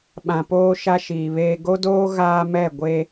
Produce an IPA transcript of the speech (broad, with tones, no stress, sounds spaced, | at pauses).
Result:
ɓ ã˨ p oː˦ ʃ a˦ ʃ iː˨ β eː˦ ɡ o˦ d oː˦ ɣ aː˦ m ɛ˦˨ ɡʷ e˦